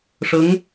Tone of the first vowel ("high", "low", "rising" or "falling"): rising